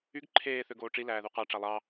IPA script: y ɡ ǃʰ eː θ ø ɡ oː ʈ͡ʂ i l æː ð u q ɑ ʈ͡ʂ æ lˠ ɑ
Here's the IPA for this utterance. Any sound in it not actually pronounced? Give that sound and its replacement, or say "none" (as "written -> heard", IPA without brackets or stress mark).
none